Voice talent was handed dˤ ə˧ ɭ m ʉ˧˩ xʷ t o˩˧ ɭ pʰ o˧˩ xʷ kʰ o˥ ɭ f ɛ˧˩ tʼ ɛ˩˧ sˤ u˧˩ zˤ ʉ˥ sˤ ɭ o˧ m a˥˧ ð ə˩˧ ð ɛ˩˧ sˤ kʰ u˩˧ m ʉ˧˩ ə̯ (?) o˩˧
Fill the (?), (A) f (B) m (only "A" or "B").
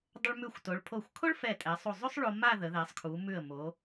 B